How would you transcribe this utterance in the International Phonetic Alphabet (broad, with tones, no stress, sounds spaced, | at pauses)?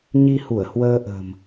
ɲ i˧ h u˧˩ ə̯ h w əː˧ ʔ ə̤˨˩ m